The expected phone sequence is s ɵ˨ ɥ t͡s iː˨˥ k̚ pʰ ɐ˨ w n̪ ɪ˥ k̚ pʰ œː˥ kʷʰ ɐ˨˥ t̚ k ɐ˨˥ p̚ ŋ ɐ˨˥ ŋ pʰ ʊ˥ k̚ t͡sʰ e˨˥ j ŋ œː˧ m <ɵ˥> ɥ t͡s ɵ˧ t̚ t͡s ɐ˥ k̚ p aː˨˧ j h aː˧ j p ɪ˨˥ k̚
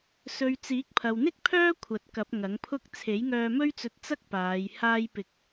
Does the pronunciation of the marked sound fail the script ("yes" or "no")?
no